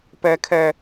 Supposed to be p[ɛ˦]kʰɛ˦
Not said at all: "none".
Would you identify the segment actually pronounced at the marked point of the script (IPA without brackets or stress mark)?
ɛ˦